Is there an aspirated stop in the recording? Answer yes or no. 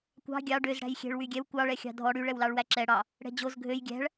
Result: no